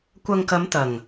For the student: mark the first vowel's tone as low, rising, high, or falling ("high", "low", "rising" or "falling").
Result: low